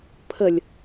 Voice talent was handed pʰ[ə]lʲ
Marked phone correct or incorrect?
correct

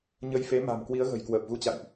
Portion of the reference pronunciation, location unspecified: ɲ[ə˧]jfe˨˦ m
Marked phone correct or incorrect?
correct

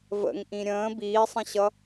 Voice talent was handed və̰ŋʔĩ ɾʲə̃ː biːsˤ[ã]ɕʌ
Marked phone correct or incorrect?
incorrect: ə̃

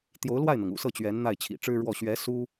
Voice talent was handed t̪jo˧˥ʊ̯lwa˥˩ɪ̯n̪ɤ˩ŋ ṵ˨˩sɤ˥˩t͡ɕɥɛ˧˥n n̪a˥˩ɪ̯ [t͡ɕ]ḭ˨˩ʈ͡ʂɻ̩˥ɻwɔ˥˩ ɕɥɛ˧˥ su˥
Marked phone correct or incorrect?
incorrect: t͡ɕʰ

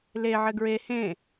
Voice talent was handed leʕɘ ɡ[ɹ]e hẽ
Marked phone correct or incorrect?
correct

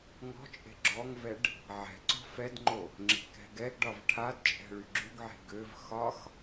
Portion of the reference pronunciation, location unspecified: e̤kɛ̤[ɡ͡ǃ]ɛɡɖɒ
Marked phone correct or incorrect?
incorrect: ɡ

